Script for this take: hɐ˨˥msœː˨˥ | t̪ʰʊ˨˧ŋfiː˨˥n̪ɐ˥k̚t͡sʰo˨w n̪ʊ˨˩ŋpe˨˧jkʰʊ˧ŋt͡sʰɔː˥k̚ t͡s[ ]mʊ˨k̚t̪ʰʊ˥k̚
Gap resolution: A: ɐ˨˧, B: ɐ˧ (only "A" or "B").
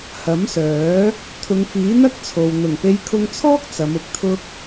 A